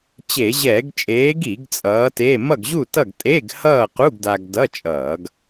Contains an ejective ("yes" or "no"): yes